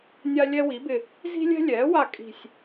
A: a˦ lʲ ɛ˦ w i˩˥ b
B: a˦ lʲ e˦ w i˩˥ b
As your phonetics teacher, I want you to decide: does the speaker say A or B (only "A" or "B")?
A